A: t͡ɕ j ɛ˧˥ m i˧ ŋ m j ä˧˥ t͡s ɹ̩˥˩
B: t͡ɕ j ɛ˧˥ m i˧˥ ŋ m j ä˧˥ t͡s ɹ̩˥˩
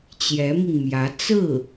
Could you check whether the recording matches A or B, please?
A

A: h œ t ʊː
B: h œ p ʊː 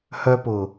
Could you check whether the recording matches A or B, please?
B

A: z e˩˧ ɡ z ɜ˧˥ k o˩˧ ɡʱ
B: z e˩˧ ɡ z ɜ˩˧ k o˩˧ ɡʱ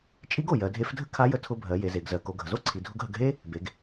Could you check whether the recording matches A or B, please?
B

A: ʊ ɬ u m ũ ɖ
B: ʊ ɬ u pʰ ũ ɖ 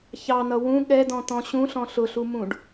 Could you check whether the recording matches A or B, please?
A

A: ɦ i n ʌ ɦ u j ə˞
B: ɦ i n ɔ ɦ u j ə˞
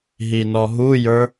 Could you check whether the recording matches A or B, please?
B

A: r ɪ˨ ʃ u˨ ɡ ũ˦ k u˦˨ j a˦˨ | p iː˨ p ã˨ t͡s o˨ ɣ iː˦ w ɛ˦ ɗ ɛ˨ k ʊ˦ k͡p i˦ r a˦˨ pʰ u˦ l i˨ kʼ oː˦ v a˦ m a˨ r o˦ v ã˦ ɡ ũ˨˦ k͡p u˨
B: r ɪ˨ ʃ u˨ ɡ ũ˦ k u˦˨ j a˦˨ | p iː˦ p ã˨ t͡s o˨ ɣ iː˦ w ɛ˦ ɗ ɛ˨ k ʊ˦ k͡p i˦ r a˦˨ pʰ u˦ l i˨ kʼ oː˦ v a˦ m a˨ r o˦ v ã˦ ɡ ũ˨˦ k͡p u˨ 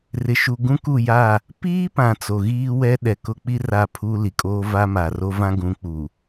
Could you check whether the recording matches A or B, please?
B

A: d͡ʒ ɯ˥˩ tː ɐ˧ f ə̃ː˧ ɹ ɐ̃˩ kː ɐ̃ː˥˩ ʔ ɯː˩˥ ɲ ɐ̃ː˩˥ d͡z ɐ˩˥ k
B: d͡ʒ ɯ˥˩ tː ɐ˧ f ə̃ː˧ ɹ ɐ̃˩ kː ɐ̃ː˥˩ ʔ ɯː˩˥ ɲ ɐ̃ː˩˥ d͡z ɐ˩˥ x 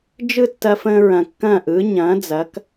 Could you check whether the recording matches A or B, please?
A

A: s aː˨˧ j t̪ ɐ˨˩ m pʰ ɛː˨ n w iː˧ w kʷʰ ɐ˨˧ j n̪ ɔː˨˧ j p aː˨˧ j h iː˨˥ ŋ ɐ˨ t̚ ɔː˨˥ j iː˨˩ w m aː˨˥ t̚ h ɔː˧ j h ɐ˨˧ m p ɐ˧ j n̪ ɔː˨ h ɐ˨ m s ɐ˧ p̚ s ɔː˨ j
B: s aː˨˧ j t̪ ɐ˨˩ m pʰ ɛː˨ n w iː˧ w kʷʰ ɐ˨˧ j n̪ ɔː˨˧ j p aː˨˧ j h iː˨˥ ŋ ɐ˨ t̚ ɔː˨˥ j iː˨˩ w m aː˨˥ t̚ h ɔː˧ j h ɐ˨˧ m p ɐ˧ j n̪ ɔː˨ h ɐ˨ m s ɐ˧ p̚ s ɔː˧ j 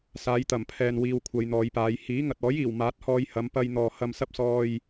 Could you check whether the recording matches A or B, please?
A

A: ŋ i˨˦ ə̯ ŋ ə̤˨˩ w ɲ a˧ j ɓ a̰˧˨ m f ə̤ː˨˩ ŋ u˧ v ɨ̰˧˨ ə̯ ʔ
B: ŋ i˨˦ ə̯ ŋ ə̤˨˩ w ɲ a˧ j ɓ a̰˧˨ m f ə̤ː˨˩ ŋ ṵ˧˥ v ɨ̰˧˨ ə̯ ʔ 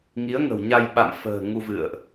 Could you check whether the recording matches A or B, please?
A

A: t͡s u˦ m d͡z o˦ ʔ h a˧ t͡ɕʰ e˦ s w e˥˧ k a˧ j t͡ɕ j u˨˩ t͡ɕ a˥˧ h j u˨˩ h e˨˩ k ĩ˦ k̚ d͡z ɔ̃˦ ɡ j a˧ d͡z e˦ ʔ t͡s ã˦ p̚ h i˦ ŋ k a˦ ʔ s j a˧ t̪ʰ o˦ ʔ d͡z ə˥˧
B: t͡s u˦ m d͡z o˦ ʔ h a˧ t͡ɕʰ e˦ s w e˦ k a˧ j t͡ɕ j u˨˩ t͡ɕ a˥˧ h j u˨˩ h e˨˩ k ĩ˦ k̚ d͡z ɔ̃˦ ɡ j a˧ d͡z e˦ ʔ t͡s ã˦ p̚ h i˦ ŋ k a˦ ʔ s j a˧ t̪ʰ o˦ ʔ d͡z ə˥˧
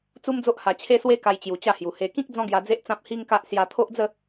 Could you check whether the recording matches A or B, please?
B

